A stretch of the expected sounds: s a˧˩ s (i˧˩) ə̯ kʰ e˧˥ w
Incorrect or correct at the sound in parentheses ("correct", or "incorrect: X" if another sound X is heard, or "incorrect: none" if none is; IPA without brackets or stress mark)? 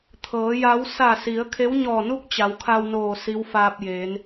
incorrect: i˩˧